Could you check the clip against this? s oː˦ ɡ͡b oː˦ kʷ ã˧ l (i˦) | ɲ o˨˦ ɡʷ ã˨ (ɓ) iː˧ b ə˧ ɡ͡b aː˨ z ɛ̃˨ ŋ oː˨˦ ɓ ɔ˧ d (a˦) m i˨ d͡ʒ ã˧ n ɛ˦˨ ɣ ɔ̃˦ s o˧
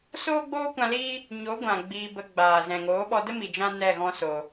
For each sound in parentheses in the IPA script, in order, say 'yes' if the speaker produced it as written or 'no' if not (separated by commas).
no, no, no